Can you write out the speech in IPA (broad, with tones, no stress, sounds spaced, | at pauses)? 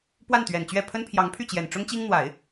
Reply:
p w a˥˩ n t̪ ɥ ɛ˨˩ n t͡ɕ ɥ ɛ˥˩ pʰ ə˥ n pʰ j ɑ˧˥ ŋ pʰ y˥˩ t͡ɕ j ɛ˨˩ n ʈ͡ʂ ʊ˥ ŋ t͡ɕ i˥ ŋ n̪ w a˨˩˦ ɪ̯